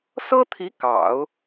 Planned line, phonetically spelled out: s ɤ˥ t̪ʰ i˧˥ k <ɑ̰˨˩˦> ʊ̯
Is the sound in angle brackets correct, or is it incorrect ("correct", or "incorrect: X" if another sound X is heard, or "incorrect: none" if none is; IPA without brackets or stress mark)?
correct